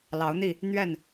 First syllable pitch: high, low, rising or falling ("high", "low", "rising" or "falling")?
rising